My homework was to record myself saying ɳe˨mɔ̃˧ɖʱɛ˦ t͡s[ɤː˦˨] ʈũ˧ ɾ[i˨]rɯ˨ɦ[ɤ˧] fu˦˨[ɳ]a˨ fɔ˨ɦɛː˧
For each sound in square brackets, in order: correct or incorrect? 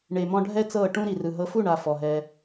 correct, correct, correct, correct

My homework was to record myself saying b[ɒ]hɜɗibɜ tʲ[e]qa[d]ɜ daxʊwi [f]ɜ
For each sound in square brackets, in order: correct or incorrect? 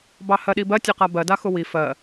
incorrect, correct, incorrect, correct

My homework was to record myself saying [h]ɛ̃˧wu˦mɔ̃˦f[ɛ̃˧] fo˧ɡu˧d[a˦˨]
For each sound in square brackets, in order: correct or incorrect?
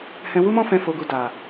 correct, correct, incorrect

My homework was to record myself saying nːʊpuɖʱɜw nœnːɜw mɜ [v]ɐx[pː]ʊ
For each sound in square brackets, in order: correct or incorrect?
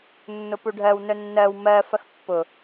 incorrect, correct

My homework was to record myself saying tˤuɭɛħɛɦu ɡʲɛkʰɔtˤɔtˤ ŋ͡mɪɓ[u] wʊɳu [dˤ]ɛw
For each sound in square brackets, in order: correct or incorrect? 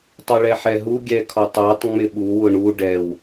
correct, incorrect

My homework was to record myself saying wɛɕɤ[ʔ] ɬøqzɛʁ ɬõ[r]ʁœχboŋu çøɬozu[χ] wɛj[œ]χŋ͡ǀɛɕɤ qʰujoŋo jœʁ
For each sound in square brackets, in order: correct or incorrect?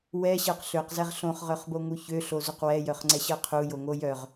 incorrect, incorrect, incorrect, correct

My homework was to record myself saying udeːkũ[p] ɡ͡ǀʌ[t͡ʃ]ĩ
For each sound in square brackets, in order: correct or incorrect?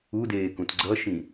incorrect, incorrect

